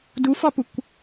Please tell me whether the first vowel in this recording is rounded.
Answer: yes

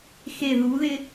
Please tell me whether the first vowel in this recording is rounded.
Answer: no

